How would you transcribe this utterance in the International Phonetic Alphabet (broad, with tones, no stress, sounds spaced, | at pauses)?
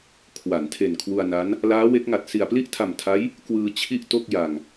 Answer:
kʰ w a˩˦ n tʰ e˨˩ n kʰ w u˧ a̯ n a˦˥ n | l aː˦˥ w e˦˥ k̚ ŋ a˨˩ t̚ s i˨˩ a̯ p l i˥˩ ʔ tʰ a˨˩ m tʰ a˦˥ j | k w ɯː˧ t͡ɕʰ i˥˩ ʔ t o˥˩ k̚ j a˧ ŋ